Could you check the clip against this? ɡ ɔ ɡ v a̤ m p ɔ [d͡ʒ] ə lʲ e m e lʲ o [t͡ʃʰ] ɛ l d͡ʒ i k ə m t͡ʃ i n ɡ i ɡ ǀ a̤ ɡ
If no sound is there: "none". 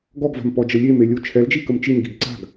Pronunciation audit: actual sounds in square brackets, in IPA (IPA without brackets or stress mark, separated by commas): d͡ʒ, t͡ʃʰ